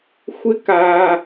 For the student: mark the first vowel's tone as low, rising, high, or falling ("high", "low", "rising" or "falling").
high